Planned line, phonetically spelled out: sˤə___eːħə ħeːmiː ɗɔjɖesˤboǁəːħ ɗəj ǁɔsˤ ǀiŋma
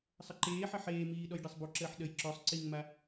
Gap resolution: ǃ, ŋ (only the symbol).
ǃ